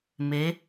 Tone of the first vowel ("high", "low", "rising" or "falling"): rising